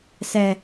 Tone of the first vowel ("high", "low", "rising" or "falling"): high